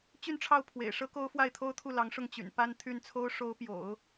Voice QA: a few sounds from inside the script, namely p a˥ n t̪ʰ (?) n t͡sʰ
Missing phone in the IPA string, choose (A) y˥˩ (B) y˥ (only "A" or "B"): A